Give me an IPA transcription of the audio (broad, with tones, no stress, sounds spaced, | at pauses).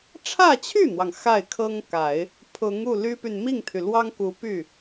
ʈ͡ʂʰ ä˥˧ t͡ɕʰ y˥˩ n̪ w ɑ˩ ŋ x a˥˩ ɪ̯ kʰ ɤ˥ ŋ k a˨˩˦ ɪ̯ | pʰ ʊ˧˥ ŋ u˥˩ l y˥ p y˨ n m i˥˩ ŋ t̪ʰ y˩ l w ɑ˥ ŋ k u˧˥ p y˥˩